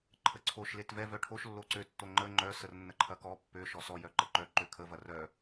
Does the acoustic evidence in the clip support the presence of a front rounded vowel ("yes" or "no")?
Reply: yes